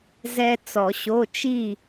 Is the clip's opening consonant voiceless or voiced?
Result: voiced